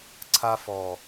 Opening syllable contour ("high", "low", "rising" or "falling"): high